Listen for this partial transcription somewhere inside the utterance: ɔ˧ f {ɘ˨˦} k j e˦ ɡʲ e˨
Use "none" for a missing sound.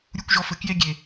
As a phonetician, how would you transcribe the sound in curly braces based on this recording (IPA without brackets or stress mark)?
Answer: ɘ˨˦